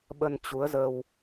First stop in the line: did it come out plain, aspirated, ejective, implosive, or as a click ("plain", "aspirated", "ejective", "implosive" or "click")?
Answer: implosive